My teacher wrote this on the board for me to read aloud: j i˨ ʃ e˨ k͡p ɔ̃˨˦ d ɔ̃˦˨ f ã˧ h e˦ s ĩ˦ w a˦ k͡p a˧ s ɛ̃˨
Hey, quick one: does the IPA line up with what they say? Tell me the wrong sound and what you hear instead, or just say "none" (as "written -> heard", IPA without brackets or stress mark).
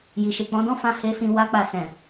ĩ˦ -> ĩ˧